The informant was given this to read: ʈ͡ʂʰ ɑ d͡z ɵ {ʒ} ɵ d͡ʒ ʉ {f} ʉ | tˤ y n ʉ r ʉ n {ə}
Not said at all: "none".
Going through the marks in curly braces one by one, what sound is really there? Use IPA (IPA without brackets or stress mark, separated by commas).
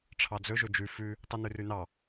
ʒ, f, ɑ